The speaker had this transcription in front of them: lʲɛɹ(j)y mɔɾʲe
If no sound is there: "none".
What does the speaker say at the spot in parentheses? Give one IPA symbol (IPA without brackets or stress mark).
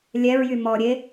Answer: j